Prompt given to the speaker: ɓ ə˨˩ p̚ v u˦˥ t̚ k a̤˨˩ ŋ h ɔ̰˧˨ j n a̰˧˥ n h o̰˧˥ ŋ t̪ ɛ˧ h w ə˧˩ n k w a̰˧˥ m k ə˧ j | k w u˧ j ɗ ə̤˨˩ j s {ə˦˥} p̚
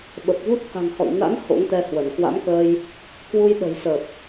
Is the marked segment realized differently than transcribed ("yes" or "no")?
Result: yes